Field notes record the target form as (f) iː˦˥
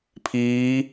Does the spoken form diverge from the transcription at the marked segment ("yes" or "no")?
yes